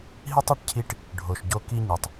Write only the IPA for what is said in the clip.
ɦ i˥ tˤ i˩˥ ʈ cʰ i˧˥ ʈ | ɖʱ o˩ ʃ ɟ o˧˥ k i˥ ɲ ɨ˩ tˤ

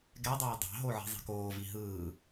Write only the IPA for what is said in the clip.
ɡ ɛ dˤ oː dˤ ɑ̤ ɦ o ʕ i̤ zˤ i̤ k oː v i ɦ ɯː

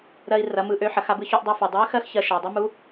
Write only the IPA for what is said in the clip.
ɾ ɜ˧ i̯ r ɐ˩˧ m ɯ˩˧ ʔ ø˩˧ ħ ɐ˩˧ x a˧ b ɯ˧ ç u˧ ʔ dˤ ɯ˩˧ f ɐ˩ dˤ ø˧˥ x ɜ˥ x ç ɜ˧ ʃ a˩ dˤ ɐ˥ m u˧˥

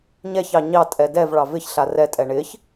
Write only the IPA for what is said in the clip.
ɲ ɛ ç ɑ ɲ ɑ tʼ ɛ d ɛ v ɭ ɑ v ɪ ç ɬ a r ɛ tʼ ɛ ɳ ɪ ç

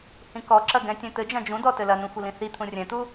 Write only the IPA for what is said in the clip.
h ĩ k ɔ ǁ ɐ ɡ ɛ̃ tʲ ɛ̃ t̪ ɘ d͡ʒ ɐ̃ d͡ʒ ũ d ɔ t ɘ l ɐ n ũ xʷ ɘ l ĩ θ i t̪ʰ ũ rʲ ɛ̃ t̪ u

